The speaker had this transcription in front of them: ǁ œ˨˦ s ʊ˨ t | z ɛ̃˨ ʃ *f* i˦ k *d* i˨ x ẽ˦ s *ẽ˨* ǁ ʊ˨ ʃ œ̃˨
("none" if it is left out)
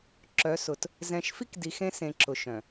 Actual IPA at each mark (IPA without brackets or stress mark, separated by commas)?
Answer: f, d, ẽ˨